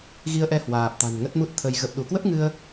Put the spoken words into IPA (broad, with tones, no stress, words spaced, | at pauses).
ɣi˧ə̯ʔɛ˧ hwaː˨˩p̚t̪a̤˨˩n ŋə˦˥t̚mu˦˥t̚t̪ʰə˧j ɣə˨˩p̚ɗu˧˩kwə˦˥p̚ŋɨ˧ə̯